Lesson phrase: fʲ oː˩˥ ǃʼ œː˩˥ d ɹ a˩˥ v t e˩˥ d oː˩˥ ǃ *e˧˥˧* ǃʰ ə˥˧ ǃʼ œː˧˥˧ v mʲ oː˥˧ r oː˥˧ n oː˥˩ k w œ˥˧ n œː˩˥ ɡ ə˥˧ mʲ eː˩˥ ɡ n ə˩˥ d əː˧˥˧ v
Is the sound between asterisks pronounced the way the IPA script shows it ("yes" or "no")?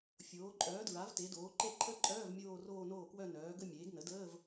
no